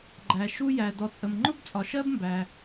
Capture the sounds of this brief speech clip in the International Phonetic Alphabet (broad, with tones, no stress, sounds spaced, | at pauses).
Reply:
ɡ͡ǃ æ˩ ʃ u˥ j æ˩ d ɔ˩ t͡sʼ ə˩ m ŋ͡ǃ ʊ˥ b t͡sʼ ɒ˩ ʃ ɜ˥ b m b æ˩